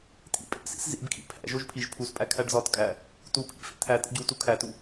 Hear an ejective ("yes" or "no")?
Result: yes